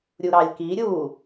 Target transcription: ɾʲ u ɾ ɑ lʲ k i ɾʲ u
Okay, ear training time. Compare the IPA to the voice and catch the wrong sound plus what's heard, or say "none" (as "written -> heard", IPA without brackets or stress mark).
none